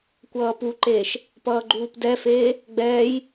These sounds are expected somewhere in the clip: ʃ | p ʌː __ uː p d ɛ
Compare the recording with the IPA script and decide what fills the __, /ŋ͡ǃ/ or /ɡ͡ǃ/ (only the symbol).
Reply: ɡ͡ǃ